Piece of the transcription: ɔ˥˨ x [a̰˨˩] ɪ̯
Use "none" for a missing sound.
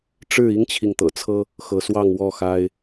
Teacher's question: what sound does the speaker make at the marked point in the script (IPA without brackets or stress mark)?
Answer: a˦